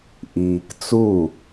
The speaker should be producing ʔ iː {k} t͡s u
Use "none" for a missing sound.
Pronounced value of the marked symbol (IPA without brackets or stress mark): k